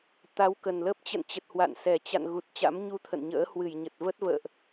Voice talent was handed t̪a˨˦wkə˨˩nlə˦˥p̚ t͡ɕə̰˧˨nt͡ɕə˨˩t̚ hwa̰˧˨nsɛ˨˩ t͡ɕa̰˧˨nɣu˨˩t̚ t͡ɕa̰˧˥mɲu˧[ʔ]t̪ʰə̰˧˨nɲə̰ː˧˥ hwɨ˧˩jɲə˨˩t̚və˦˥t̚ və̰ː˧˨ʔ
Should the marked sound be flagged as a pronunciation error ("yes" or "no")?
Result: yes